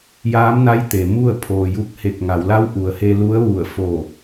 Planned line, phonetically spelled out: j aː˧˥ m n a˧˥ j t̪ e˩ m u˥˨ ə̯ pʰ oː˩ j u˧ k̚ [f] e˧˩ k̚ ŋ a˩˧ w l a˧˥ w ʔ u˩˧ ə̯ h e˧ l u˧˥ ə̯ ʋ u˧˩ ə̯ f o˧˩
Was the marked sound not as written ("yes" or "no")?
yes